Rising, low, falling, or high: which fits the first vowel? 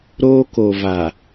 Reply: high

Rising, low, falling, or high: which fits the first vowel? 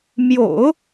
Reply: low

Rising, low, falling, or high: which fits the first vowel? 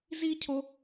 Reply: high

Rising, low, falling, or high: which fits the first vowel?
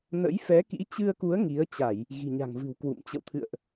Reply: rising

